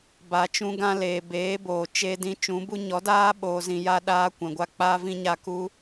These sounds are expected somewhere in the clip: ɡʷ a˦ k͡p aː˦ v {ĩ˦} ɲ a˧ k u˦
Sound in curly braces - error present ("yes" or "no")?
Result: no